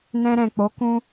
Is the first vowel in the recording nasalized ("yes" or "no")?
yes